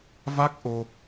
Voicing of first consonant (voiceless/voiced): voiced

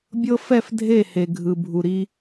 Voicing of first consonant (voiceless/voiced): voiced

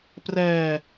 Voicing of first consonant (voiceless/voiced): voiceless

